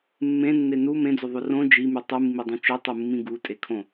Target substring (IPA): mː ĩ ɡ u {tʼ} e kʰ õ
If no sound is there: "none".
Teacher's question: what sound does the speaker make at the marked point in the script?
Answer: tʼ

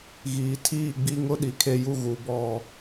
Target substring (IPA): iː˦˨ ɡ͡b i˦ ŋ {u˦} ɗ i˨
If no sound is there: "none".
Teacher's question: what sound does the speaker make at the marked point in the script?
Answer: ʊ˦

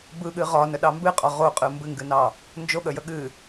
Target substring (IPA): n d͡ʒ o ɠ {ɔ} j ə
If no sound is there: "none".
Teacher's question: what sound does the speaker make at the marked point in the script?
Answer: ə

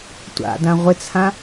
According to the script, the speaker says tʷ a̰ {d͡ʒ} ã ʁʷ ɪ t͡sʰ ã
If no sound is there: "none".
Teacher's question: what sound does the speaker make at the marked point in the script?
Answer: d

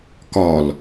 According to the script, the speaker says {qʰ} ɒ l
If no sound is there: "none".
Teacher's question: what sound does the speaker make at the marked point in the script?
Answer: k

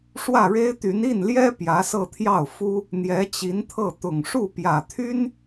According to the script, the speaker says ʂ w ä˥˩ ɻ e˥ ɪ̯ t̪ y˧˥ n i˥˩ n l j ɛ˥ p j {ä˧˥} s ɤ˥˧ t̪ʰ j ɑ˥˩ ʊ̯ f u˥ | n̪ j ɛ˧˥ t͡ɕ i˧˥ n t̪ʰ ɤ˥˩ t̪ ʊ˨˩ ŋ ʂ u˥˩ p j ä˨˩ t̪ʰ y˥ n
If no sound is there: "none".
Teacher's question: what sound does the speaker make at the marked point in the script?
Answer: ä˧˥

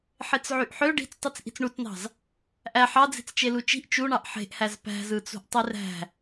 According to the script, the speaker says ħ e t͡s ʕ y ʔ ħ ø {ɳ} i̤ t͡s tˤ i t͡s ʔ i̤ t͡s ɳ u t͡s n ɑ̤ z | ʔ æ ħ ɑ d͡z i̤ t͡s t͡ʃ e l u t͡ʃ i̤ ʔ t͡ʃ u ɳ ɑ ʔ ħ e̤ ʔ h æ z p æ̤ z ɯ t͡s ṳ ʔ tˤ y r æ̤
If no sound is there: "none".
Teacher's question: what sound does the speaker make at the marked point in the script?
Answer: ɖ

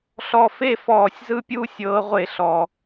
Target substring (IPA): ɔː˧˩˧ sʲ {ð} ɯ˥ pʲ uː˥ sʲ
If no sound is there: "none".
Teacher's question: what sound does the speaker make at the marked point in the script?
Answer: z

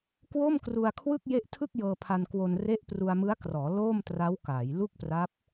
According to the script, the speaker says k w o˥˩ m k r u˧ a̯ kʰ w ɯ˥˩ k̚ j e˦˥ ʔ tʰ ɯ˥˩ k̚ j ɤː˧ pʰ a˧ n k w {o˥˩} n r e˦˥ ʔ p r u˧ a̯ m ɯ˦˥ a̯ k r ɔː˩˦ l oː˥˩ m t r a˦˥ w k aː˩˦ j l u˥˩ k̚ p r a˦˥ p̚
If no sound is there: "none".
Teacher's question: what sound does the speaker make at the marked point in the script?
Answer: o˧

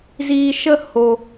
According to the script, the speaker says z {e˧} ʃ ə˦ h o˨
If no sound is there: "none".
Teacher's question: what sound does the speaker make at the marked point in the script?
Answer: i˧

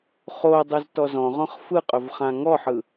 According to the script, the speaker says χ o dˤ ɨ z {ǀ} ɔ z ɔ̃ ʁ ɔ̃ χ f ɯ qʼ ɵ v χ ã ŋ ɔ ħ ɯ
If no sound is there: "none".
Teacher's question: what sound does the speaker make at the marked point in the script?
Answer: t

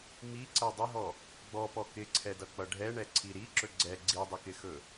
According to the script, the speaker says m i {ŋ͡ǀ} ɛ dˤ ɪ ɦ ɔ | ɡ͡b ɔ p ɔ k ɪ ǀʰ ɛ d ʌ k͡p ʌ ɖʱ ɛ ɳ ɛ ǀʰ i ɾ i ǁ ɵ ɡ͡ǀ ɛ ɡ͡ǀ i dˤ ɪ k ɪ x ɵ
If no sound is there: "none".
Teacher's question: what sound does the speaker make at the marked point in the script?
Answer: ǀ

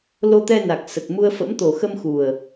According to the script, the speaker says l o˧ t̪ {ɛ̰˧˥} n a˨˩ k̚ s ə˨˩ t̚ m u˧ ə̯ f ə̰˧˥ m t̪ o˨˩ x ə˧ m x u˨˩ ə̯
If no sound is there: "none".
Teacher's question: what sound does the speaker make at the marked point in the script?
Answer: ɛ˧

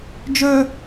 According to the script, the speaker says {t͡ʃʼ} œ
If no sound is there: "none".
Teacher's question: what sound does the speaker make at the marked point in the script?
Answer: d͡ʒ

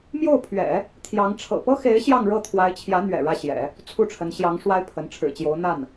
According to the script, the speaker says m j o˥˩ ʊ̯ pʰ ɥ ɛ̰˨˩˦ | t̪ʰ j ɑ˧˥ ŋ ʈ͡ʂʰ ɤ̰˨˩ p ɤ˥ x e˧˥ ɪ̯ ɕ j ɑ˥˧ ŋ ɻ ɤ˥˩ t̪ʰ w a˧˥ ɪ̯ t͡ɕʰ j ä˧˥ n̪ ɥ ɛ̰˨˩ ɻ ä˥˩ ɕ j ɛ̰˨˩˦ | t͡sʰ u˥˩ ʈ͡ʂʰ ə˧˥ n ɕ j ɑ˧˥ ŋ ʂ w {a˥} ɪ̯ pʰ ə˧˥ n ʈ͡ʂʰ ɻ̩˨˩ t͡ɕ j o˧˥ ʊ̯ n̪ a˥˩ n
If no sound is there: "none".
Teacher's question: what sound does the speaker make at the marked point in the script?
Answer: a˥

